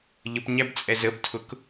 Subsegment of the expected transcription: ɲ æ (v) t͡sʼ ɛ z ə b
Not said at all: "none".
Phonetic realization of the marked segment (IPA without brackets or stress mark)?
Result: b